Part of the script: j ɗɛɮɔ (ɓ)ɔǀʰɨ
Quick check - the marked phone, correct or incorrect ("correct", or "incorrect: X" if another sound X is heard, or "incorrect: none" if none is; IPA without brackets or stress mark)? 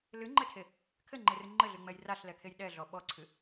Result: correct